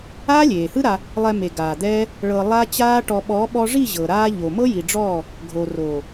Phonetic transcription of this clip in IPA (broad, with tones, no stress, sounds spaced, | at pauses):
aː˦ lʲ eː˨ h ɯ˦ ɾ a˧ | lˠ ɛ˧ m e˨ ɡ aː˨ d̪ ɛː˦ | ɭ ɤ˧ lˠ a˦ t͡ɕ aː˦ ʈ ɔ˧ ɓ ɔ˨˦ ɓ ɔ˧ ʐ i˦˨ ʑ ɤ˨ ɾ aː˦ ʎ o˨ m ɤ˦ j i˨ ɖ͡ʐ ɔː˦˨ | ɡʱ o˨ r oː˨